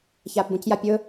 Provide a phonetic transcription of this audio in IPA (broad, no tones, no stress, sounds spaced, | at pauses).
ç aː p b ũ c j a pʲ ɵː